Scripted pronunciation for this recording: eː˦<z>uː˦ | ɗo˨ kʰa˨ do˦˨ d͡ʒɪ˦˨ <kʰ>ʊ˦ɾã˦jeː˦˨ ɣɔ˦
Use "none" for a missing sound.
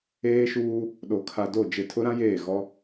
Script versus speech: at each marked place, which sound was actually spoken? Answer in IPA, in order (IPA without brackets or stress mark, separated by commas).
ʃ, tʰ